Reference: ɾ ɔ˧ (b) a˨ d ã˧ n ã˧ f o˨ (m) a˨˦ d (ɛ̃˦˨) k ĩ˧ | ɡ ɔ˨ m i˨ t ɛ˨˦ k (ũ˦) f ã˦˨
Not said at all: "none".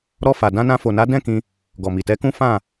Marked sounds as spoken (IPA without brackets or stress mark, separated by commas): f, n, ɛ̃˦˨, ũ˦